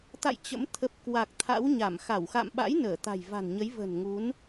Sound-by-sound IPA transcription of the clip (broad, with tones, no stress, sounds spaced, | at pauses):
t̪ a̰˧˨ j t͡ɕ ə̰˧˥ m t̪ʰ ə˨˩ p̚ k w a˨˩ k̚ t̪ʰ a̰˧˥ w ɲ a˧˩ m x a˧˩ w x a̰˧˨ m ɓ a̰˧˥ j n əː˧˩ t̪ a̤˨˩ j v a̤˨˩ n ɲ ə˨˦ j v ə̤˨˩ n ŋ u˨˦ n